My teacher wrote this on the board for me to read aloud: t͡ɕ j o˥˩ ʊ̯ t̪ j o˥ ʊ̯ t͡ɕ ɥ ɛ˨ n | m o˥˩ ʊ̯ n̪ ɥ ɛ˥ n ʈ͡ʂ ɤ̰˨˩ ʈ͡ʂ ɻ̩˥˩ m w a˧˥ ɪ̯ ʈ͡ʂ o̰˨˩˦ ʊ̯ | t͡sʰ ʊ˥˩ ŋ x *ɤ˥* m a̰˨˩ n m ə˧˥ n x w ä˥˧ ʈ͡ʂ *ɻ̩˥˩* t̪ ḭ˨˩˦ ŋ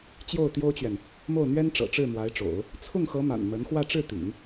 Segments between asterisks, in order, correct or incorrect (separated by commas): incorrect, correct